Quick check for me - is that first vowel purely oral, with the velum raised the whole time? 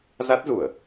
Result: yes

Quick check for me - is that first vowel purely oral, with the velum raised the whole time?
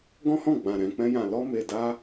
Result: no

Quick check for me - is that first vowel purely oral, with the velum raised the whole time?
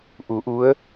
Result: yes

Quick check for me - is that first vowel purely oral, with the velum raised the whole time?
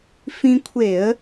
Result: no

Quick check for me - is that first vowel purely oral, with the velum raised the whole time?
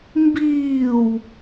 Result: yes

